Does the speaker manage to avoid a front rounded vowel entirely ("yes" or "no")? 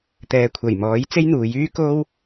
no